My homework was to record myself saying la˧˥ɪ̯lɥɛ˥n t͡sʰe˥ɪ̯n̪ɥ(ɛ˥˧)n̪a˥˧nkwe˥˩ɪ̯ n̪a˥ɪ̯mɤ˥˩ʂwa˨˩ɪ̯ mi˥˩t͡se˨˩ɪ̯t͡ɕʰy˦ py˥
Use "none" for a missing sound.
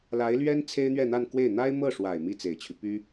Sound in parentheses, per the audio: ɛ˥˧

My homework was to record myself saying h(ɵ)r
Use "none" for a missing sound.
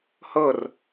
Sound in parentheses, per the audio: ɤ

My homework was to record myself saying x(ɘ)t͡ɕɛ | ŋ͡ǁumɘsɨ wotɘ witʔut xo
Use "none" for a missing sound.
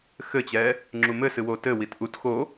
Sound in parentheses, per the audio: ɘ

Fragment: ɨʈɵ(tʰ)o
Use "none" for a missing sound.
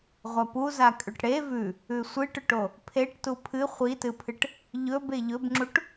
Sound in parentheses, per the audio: ʈ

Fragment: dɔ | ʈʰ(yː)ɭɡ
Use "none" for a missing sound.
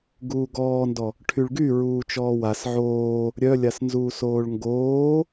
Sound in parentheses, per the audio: y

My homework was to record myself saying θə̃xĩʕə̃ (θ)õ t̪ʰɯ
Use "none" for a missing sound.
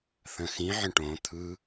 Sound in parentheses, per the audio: ʈ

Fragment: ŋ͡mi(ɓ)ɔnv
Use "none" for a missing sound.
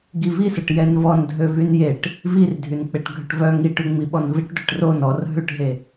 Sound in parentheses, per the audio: ɓ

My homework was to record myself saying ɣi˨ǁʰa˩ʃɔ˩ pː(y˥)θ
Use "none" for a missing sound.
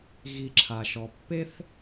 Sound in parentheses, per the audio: e˥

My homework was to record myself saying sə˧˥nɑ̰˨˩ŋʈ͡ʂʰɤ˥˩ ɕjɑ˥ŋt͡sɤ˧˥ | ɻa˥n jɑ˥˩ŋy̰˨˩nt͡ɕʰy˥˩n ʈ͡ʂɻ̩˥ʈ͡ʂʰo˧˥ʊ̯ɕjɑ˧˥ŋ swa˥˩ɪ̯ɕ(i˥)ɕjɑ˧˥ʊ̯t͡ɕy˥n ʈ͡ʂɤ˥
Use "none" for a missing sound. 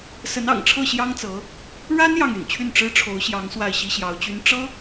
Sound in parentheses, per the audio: i˥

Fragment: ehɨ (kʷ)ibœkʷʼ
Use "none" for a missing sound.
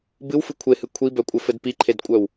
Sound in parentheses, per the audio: kʷʰ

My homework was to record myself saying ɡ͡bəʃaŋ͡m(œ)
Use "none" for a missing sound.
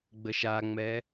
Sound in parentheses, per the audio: ɛ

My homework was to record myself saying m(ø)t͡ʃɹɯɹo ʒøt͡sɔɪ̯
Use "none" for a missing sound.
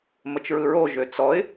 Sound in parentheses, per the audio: ə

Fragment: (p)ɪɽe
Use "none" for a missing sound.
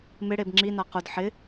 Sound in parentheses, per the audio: m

